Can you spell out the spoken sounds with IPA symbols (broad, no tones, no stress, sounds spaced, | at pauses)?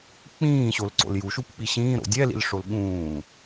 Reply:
k͡p ĩː ɕ o l ǀ o̰ l j u ʃ u p k͡p i ɕ ĩː ɾ o̰ dʲ ɛ l ḭ l ʂ o l ɠ ũː